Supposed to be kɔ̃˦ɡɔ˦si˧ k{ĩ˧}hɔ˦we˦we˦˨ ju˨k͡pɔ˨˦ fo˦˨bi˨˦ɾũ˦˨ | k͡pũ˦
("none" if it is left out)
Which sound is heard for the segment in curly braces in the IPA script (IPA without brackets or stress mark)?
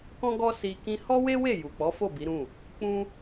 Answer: ĩ˧